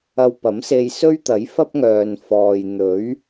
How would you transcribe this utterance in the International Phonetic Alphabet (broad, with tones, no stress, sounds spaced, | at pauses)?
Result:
ɐ˧ w p ɐ˨˥ m s e˧ j s ɵ˥ ɥ t̪ ɐ˨˥ j f ɐ˥ p̚ ŋ œː˨ n f ɔː˨ j n̪ ɵ˨˥ ɥ